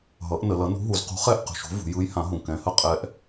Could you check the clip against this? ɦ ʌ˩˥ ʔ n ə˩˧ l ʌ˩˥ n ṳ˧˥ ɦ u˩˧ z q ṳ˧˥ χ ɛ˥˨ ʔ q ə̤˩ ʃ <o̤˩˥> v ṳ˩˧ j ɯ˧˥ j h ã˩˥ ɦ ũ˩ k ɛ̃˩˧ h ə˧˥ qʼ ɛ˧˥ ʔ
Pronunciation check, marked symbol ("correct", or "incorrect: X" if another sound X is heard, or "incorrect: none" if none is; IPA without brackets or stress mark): correct